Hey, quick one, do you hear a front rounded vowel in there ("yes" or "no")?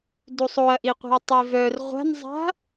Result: yes